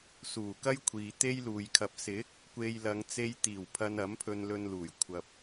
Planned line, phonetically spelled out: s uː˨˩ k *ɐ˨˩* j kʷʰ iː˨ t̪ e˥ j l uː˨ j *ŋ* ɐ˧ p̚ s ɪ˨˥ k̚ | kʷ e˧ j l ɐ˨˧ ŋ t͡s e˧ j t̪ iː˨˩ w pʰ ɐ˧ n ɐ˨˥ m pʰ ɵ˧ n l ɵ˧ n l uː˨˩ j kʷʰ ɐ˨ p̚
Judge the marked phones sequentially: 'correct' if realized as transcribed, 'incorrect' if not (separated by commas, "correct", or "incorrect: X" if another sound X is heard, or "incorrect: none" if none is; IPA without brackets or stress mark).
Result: incorrect: ɐ˥, incorrect: kʰ